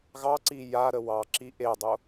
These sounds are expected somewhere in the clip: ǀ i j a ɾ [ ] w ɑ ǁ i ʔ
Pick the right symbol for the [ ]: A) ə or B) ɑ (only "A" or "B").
A